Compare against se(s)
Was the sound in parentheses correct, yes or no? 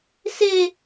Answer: no